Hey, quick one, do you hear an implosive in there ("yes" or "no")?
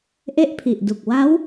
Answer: no